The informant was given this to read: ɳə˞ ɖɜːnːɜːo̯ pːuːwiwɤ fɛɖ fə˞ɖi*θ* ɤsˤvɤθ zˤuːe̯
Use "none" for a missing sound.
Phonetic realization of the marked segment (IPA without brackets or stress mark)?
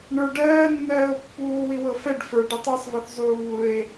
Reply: tˤ